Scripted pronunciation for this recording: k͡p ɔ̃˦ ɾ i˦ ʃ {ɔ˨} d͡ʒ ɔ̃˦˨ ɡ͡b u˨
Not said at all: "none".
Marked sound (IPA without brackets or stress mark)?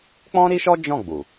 ɔ˦